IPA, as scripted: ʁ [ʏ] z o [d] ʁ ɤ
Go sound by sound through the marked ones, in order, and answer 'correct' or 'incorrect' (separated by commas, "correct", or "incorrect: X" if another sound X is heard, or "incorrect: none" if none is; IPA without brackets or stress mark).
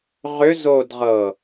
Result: correct, correct